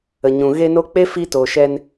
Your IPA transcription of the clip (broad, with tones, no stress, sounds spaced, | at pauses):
ə˨ ɲ ũ˨ ɣ e˧ n o˧ k͡p e˦ f i˦ t o˨ ʃ ɛ˧ n